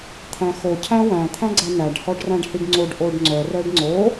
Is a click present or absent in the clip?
present